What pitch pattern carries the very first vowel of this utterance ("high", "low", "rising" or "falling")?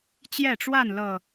falling